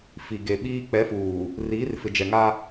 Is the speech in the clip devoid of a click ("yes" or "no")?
yes